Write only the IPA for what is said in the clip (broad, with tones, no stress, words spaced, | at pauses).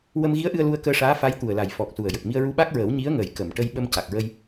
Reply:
wə˧mɣi˧˥ə̯ʔɨ˧ə̯ lu˧ə̯kəː˧ʂaː˧˥ fa˧˥jt̪u˨˩ə̯la˨˩j fɔ˨˩k̚ su˨˩ə̯jə˨˩k̚ mi˧ə̯ɹu˧ɓa˦˥k̚ɹəː˨˩˦w ɲi˧˥ə̯ŋəː˨˩j kə˨˩˨m ʈə˧jɓə˧m ca˨˩k̚ɹə˧j